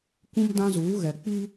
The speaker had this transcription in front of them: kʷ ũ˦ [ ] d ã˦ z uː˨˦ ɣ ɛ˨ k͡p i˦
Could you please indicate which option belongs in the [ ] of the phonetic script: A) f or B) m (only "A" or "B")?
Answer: B